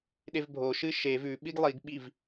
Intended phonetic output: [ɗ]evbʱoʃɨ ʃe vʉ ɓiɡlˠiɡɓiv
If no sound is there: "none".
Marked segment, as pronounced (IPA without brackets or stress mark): ɗ